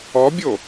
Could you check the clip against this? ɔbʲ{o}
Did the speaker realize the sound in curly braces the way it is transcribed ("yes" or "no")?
yes